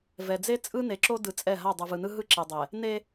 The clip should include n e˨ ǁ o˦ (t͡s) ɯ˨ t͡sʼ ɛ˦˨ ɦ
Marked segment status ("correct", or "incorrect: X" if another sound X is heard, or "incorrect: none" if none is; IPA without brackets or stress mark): incorrect: d